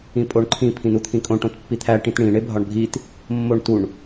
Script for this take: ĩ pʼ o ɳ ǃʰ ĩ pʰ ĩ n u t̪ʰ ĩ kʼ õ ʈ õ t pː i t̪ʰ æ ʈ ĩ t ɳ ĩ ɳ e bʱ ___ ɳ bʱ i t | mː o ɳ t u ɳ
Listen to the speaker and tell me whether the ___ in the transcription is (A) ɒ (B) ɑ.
A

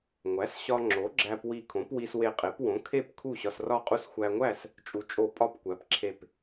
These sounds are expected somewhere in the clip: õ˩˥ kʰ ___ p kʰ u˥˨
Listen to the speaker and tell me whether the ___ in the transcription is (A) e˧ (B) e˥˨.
B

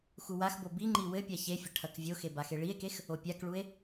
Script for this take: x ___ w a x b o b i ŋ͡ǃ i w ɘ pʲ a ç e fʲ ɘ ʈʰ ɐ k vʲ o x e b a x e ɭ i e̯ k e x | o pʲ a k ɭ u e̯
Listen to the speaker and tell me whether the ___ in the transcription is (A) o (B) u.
B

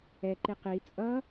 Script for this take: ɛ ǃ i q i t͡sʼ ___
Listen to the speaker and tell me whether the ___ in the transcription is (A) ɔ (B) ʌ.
B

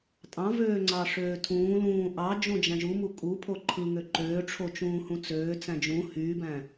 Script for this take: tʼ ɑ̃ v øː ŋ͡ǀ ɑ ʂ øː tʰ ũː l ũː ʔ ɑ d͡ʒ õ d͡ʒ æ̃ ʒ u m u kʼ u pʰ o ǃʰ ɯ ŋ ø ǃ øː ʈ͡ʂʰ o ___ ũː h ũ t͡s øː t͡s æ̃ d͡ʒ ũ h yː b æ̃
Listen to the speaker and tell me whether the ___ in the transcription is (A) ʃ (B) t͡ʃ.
B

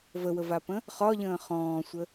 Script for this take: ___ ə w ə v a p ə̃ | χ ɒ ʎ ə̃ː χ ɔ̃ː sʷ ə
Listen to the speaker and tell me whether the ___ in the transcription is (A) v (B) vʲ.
A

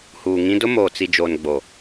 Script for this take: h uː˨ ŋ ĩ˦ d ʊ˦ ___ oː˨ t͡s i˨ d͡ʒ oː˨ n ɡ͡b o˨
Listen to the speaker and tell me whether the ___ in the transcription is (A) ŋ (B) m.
B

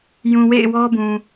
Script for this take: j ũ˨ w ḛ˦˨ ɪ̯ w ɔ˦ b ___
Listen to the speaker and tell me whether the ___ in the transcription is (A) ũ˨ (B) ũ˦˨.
A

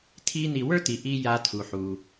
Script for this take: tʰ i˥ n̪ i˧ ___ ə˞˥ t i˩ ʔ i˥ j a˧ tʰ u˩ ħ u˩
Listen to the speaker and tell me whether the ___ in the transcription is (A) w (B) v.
A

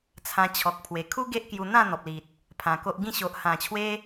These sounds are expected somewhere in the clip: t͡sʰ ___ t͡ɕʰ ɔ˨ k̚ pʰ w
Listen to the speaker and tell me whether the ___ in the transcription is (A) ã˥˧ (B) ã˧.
B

